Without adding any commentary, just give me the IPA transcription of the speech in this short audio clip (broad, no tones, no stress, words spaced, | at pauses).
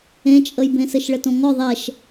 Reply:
ẽt͡ʃʼəjbẽ sɘʃɭɘtõŋɔ ðˤɛʃ